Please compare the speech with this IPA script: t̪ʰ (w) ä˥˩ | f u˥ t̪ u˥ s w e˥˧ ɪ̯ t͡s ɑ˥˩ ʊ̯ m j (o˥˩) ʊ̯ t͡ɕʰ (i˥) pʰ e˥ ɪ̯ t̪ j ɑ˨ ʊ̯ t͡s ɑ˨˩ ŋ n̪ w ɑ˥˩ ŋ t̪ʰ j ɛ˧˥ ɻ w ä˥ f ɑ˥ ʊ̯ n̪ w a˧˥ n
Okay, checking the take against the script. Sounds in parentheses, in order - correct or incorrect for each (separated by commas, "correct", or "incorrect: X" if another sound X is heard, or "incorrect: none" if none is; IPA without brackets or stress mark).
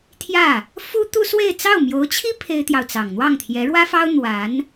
incorrect: j, incorrect: o˧˥, correct